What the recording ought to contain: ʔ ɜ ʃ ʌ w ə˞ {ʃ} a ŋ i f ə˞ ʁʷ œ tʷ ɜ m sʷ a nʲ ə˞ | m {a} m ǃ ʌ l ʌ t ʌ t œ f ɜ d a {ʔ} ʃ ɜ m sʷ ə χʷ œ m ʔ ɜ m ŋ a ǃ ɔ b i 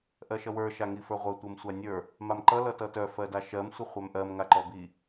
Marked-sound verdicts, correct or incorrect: correct, correct, incorrect: none

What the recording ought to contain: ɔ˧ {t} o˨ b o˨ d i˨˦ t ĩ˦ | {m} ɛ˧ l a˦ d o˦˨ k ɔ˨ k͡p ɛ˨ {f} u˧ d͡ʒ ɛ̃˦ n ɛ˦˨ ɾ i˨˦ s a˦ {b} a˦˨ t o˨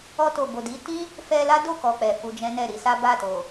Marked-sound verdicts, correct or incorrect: correct, incorrect: f, correct, correct

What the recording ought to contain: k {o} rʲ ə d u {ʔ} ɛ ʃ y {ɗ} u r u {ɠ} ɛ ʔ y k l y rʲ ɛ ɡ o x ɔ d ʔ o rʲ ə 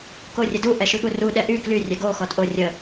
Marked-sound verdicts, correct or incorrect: correct, correct, incorrect: ɠ, incorrect: ɗ

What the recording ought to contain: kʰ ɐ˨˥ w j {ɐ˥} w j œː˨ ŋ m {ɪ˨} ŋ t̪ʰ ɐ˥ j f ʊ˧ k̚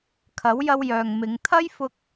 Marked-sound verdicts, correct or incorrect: incorrect: ɐ˧, incorrect: ɪ˨˧

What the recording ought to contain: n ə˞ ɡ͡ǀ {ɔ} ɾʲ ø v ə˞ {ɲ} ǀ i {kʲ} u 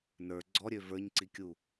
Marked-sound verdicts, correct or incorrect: correct, correct, correct

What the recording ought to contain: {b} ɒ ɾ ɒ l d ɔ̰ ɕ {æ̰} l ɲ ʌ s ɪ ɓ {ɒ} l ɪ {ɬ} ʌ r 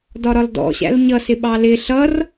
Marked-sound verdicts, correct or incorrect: incorrect: d, correct, incorrect: ɑ, correct

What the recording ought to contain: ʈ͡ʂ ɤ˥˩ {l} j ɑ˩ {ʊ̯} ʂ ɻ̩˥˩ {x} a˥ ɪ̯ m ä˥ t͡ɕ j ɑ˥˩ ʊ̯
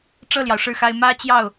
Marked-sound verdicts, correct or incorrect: correct, correct, correct

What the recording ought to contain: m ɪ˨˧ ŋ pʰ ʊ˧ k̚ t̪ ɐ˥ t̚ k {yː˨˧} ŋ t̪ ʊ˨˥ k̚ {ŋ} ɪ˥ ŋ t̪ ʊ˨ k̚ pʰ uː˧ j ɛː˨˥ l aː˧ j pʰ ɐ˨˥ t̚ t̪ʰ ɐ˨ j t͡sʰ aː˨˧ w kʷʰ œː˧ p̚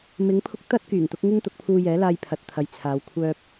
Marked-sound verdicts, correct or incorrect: incorrect: yː˨˩, correct

